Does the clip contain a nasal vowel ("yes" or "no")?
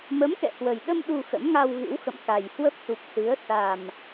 no